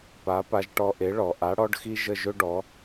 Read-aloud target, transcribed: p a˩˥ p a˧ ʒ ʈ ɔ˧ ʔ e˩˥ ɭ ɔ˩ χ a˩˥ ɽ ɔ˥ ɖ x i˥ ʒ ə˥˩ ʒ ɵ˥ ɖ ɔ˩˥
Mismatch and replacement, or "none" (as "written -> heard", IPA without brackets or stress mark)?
χ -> ʔ